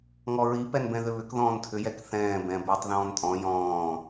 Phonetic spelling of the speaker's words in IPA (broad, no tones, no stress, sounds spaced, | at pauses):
ŋ ɔ ɹ i p ɛ n b ɛ̃ ð ʏ β ʏ k ð ɔ̃ː n tʰ ʏ j ɛ k θ ɛ̃ː b ɛ̃ b ʏː tˤ ð ɔ̃ː n tʼ ɔ̃ j ɔ̃ː